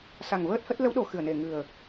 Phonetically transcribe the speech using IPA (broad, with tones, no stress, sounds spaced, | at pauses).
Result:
s a˨˩ ŋ v əː˦˥ t̚ h ə˦˥ t̚ l ə˨˦ w ɗ o˨˩ x ɨ˧˩ ə̯ n e˨˩ ŋ ɨ˨˩ ə̯